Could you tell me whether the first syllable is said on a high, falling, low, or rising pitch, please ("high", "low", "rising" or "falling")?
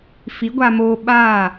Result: rising